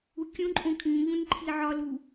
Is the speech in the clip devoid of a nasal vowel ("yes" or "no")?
no